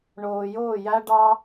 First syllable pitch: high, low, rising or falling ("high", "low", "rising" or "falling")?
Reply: low